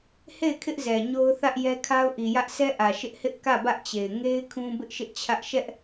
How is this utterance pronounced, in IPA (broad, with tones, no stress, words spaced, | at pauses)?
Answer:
he˦˨ɪ̯kʰɪ˦ʔzɛ˨ ɲo˦ʊ̯θä˦ʔjɛ˦ kʰa˦ʊ̯ʔi˨jä˦ʔ sʰɛ˦ʔä˨ ʃɪ˦ʔhɪ˦ʔ kä˦˨bä˦ʔt͡ɕe˨ɪ̯ ŋe˦ɪ̯ kʰũ˦ bɪ˦ʔʃɪ˦ʔt͡ɕʰä˦ʔ ʃɛ˦ʔ